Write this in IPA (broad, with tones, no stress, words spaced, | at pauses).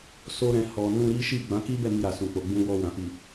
so˧ɾɛ̃˨ hɔ˨ nũ˧ɾi˦ʃi˦˨ ɡ͡bã˨˦ki˦bɛ˦˨ mi˧ɾa˨sũ˨k͡po˨ ɡ͡bũ˧wɔ˧wã˨ fi˨